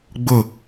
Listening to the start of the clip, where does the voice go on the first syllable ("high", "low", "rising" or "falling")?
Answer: falling